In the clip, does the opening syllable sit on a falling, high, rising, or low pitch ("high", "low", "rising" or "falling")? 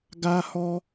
high